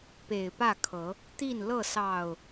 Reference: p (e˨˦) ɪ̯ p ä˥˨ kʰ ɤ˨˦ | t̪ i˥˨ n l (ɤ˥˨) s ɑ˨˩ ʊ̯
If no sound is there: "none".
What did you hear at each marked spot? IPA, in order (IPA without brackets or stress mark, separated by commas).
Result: e˨˩, ɤ˥˨